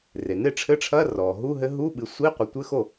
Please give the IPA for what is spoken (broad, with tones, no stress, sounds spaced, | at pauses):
r e˩ n e˥˩ ʈ͡ʂʰ ɘ˧˥˧ ʈ͡ʂʰ ɐ˧˥˧ r ɔ˩ ɦ u˧˥˧ ɦ ɘ˧˥ ɦ u˧˥˧ ɓ ɨ˩˥ sʷ i˧˥˧ qʷ ɘ˩˥ tʷ ɘ˧˥˧ x o˥˩